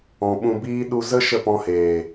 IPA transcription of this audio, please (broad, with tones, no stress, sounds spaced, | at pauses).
ɔ̃˨ ɓ ũ˧ b iː˦ ɗ u˧ z ə˦ ʃ ə˦˨ p ɔ̃˧ h eː˨